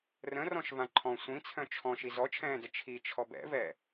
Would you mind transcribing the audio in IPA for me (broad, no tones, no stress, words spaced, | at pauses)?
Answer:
rə̃rɔ̃ʃ vãǃʰɔ̃ sʷĩt͡sʰœ̃ t͡ʃʰɔ̃ ʃizɔt͡ʃʰɛ̃ːdə t͡ʃʰit͡ʃʰɔb ɛ̰vɛ